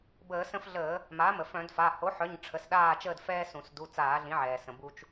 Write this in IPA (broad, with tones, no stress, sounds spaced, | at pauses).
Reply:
b əː˧˩˧ s ə̃˦ f ɮ əː˧˩˧ | m a˩˥ m ə˩ f œ̃˧˩˧ d f a˩˧˩ h o˩˥ ħ œ˩˧˩ ɲ ʈ͡ʂʰ ə˩˧˩ s ɗ aː˦˨ t͡ʃ əː˦˨ d f ɛː˦ s ũ˧˩˧ s d u˩˧˩ t͡s aː˧˩˧ ɮ ĩ˩˥ ʕ ɛː˩ s ə̃˩ b u˦ t͡ʃ